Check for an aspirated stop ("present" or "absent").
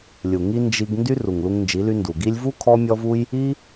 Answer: present